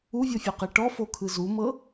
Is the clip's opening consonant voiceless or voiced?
voiced